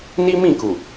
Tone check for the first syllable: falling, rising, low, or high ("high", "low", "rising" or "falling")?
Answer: high